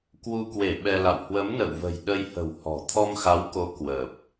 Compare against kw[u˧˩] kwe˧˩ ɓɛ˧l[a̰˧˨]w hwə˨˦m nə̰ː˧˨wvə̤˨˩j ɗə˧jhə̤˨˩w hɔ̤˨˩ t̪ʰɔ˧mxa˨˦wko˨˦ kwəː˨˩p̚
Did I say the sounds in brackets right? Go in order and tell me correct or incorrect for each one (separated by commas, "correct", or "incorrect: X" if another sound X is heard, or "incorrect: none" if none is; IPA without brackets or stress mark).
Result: incorrect: u˧, correct